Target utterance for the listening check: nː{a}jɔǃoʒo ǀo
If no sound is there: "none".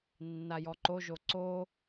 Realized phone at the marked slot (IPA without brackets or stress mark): a